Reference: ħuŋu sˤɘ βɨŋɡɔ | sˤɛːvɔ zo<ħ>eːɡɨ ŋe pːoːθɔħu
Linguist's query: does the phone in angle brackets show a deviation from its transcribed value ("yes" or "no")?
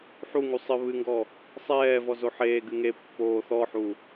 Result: no